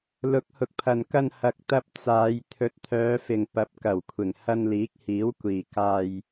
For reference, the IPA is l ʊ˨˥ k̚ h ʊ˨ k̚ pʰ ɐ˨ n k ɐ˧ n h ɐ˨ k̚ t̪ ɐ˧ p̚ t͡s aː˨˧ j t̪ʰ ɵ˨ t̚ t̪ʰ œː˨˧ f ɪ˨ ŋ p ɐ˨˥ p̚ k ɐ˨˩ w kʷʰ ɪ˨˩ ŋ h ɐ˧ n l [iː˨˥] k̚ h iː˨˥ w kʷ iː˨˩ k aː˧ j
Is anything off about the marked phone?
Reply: no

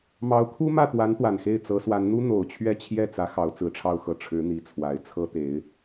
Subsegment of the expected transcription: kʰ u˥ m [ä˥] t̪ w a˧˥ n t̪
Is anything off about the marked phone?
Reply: yes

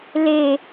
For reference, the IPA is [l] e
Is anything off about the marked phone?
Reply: no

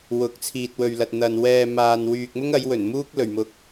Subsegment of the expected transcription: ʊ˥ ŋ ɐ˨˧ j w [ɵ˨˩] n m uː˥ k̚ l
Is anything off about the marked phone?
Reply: no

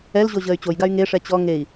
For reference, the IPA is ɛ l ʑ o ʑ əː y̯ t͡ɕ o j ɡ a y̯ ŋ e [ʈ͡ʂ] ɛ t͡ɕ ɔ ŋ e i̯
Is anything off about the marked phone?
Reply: yes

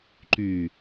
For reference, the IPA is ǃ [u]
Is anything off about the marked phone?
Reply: yes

